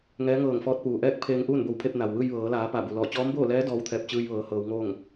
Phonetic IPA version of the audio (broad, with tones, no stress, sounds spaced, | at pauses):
ŋ ɛː˧˥ ŋ ɤː˧˩ ŋ f ɔː˧˥ t̚ p uː˩ ʔ ɛː˥˨ k̚ pʰ eː˧ ŋ ʔ uː˥˨ n b o˧˩ w pʰ e˧ p̚ n a˩ w ʋ ɯː˧ j ʋ ɤː˩˧ l aː˩˧ p a˧˩ b u˩ l ɔː˧˩ t͡ɕ ɔː˧˥ m b oː˥˨ l ɛː˧˥ d ɔː˧˥ w t̪ʰ ɛː˧˩ p̚ t͡ɕ ɯː˧ j ʋ ɤː˩˧ h ɤː˩˧ w ŋ oː˥˨ ŋ